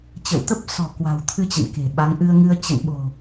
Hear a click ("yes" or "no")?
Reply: no